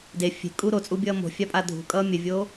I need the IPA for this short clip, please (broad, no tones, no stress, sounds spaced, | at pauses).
d e fʲ e̤ kʼ u ɾ o t͡sʼ u bʲ ʌː m o̤ fʲ a pʼ a dʱ ṳ kʼ ʌ mʲ ɘ vʲ oː